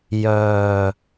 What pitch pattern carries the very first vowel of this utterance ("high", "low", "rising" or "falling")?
low